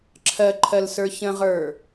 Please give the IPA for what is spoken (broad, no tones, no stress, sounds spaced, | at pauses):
ǁʰ ɜ ǃʰ ɜ l s ə˞ ç ə̃ ʁ ə˞